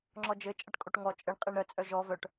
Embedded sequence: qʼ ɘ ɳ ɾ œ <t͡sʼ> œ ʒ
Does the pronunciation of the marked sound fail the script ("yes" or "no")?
no